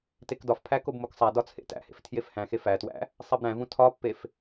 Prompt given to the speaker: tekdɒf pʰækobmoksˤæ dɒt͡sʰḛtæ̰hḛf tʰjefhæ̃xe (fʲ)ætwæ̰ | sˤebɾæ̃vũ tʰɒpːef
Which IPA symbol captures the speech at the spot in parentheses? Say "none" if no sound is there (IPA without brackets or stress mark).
f